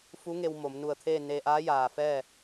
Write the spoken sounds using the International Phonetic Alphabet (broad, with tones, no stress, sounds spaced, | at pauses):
f u˧˥ ŋ e˧ w m o˩˧ m n u˧˩ ə̯ t̪ʰ eː˥˨ n e˧ ʔ aː˧˥ j aː˩ f ɛː˥˨